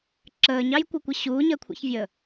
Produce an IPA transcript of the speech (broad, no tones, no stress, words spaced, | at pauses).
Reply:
ǁəːɲɑjkʷɜkʷɪ ɕuːɲɜkʷʰɛ̰çvʲə